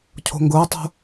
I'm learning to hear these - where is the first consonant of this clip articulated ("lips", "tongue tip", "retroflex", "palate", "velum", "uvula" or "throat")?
palate